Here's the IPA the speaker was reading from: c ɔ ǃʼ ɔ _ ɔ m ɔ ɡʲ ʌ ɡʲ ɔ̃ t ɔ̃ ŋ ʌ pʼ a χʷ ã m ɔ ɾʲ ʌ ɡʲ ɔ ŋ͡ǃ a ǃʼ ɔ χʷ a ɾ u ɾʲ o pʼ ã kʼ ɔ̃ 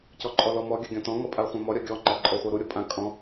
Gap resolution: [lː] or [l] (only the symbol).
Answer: l